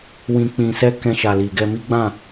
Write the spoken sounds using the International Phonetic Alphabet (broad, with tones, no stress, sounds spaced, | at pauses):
w ĩ˧ k͡p ĩ˧ s ɛ˦ k ɛ̃˧ ʃ a˨ l i˨ ɡ ɛ˧ m i˦ ɡ͡b ã˦˨